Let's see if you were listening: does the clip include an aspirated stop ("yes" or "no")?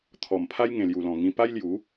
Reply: yes